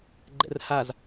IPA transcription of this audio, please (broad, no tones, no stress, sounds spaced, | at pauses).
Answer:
ɡ͡ǃ ɛ̰ r h a z